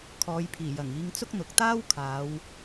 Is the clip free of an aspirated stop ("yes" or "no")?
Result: no